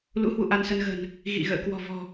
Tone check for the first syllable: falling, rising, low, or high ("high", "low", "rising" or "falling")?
rising